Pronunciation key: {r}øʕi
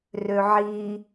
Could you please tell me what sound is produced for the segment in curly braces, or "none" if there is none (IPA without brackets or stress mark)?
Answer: r